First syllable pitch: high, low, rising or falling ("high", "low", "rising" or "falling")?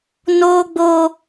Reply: high